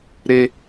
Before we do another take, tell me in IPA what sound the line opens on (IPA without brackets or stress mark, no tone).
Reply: ɾ